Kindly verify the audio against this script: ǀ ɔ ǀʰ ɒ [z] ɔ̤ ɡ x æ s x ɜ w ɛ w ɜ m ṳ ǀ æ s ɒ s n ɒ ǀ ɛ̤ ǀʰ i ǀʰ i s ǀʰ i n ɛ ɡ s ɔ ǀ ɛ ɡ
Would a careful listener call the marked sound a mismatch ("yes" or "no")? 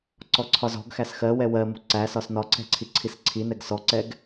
no